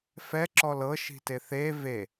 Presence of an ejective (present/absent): absent